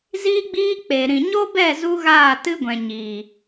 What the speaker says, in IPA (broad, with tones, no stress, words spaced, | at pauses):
ziː˦ɡ͡biː˦ k͡pe˨ ɾĩ˨ɲo˦bɛ˦˨ zu˦ɣaː˦˨tɨ˦ɡʷɛ̃˨ ɲiː˨